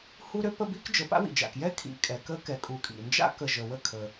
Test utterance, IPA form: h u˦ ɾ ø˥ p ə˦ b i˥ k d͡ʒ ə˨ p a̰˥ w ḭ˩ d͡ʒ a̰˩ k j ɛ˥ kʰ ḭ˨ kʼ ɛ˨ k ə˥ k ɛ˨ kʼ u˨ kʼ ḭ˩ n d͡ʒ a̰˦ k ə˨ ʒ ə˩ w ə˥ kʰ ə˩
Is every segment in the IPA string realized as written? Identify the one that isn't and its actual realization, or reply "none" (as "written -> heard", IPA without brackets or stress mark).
none